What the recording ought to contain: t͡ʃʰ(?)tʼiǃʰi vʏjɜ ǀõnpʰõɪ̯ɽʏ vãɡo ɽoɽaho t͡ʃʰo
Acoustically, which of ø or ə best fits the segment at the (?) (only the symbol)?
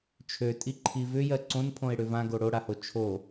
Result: ø